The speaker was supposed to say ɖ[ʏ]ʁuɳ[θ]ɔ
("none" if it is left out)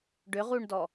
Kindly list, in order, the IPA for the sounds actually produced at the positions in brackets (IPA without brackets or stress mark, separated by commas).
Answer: ʏ, d